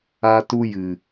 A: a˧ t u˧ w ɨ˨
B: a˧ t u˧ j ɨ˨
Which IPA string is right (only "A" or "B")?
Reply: B